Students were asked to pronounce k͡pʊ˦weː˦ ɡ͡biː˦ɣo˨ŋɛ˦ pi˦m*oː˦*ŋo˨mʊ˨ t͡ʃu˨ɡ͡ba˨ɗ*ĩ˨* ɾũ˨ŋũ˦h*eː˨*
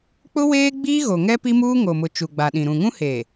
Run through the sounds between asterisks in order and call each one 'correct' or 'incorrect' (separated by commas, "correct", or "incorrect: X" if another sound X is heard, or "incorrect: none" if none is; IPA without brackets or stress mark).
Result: incorrect: uː˦, correct, correct